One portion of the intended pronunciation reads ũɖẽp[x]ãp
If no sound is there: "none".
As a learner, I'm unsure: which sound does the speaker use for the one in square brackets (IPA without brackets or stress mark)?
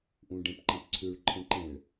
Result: ǃ